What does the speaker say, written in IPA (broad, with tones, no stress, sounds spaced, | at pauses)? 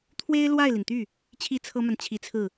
t̪ʰ w e˥ ɪ̯ l w a˥˩ ɪ̯ l i˩ n t̪ y˥˩ | t͡ɕʰ i˥ t͡sʰ ɤ˥ m a˨ n t͡ɕʰ i˧˥ t͡sʰ ɹ̩˥˩